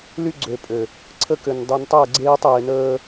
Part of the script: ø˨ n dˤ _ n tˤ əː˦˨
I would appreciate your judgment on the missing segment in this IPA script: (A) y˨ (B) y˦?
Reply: A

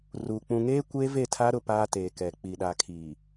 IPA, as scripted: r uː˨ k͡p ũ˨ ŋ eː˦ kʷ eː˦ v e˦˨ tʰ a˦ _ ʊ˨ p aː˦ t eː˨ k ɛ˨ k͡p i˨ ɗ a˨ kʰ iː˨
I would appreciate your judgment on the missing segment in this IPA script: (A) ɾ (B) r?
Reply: A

